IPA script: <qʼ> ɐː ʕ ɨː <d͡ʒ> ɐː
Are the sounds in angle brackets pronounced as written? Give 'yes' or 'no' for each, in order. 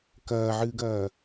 no, no

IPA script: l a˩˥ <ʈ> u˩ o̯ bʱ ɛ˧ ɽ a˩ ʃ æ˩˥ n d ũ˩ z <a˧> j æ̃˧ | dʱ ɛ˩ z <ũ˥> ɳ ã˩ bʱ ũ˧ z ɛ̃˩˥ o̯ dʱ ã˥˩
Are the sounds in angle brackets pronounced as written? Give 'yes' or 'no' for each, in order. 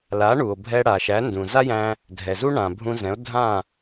no, no, no

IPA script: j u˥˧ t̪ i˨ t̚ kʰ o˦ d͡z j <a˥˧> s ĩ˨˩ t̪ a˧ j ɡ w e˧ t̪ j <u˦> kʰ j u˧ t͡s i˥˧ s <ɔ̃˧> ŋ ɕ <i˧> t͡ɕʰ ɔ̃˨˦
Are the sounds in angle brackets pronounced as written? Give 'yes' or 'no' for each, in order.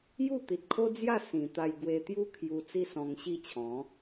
yes, yes, yes, no

